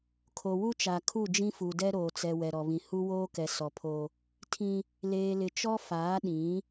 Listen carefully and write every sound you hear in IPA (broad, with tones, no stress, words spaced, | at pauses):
kʰo˨wu˦t͡ʃa˨kʰu˦˨ d͡ʒĩ˦fu˨dɛ˦ ɾoː˨t͡sɛ˨ wɛ˨ɾɔ˨βĩ˨ hu˦woː˦kɛ˨ sɔ˨pʰo˦ | tʰĩ˦ | leː˨lɪ˨t͡ʃɔ˦ faː˨˦ɗĩ˨˦